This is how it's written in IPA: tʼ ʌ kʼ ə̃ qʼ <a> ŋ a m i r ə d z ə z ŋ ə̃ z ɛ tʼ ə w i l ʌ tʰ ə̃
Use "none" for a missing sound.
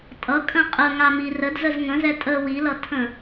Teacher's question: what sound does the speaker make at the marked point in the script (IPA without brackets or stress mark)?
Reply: ə